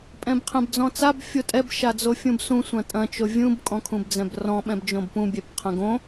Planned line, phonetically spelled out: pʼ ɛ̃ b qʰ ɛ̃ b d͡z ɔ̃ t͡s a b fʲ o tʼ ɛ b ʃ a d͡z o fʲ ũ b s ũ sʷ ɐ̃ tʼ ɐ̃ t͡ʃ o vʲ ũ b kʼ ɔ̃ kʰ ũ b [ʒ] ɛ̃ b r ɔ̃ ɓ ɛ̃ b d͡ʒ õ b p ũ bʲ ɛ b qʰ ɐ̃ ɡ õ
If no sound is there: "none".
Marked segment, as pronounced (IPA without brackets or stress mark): d͡z